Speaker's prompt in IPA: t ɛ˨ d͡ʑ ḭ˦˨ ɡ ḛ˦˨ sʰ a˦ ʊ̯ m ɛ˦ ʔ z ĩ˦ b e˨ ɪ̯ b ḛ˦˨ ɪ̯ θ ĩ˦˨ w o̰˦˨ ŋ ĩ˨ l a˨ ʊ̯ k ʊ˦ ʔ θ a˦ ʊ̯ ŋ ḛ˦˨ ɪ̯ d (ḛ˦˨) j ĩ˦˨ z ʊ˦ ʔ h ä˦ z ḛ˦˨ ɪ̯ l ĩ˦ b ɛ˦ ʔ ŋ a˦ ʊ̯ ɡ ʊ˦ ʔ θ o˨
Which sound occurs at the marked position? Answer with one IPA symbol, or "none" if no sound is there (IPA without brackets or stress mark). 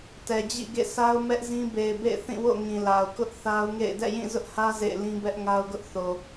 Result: ɛ̰˦˨